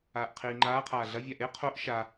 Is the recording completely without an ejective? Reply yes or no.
yes